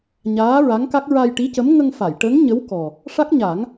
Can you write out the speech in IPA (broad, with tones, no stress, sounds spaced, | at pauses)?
ɲ aː˧˥ ɹ a˧˥ ŋ k a˦˥ k̚ ɹ a˧ j ʈ i˧˥ c ə˧˥ m ŋ ə˧ ŋ f a˨˩˨ j ʈ ə˧˥ ŋ ɲ ə˧˥ w k ɔ˨˩ | ʂ a˦˥ k̚ ɲ a˨˩˦ ŋ